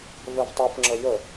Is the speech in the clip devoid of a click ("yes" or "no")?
no